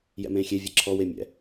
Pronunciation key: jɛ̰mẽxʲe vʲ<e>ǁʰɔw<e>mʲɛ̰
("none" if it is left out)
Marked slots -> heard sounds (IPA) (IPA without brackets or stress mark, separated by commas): e, e